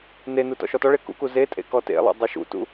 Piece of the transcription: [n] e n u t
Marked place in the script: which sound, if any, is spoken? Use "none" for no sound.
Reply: n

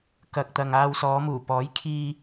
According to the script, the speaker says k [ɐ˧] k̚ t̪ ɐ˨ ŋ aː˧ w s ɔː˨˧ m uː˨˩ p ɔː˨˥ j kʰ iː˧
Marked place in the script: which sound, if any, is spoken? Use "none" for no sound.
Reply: ɐ˨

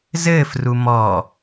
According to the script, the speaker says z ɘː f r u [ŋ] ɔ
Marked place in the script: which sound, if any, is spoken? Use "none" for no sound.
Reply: m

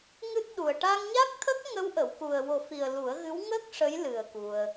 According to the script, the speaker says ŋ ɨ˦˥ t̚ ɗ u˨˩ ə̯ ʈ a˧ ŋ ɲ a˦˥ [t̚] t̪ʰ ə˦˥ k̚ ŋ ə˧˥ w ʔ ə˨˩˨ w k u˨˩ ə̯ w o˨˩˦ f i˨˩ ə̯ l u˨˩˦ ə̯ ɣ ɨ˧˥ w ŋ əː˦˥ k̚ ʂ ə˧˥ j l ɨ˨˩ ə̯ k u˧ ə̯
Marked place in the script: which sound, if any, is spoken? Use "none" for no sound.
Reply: k̚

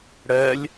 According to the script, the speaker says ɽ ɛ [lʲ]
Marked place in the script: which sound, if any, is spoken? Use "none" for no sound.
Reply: lʲ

